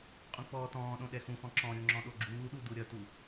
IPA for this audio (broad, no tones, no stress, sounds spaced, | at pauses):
qʼ ũ k͡p ɔː t ɔ̃ː ɗ õ ɗ ɛ x ũ x ɔ̃ ǁ ɔ̃ ɾʲ o ŋ͡ǁ ɔ̃ ɗ o ɡ͡ǁ uː ɗ u d u ɾʲ ʌ t u